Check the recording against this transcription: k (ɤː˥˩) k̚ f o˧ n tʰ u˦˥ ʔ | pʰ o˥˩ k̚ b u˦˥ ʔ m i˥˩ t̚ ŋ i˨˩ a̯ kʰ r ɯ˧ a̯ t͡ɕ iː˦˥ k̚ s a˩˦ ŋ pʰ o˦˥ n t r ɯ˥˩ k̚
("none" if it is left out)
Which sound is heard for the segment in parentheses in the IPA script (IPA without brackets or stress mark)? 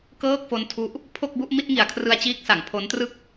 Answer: ɤː˥˩